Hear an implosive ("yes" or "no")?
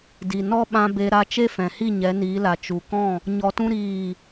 yes